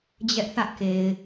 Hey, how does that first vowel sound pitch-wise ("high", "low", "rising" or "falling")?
high